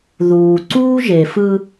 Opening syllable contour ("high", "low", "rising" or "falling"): low